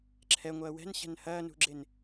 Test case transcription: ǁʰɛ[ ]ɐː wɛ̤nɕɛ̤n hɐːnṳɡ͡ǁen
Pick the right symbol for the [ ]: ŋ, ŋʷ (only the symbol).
ŋʷ